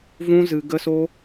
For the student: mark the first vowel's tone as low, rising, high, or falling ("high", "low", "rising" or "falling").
high